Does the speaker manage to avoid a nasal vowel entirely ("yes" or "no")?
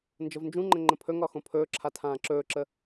no